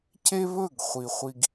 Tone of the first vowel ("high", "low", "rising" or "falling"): high